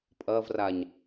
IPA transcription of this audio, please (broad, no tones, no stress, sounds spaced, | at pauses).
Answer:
pʼ ɐː v r a ɲ